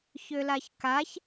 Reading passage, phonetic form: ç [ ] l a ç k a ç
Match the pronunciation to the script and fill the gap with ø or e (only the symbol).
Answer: ø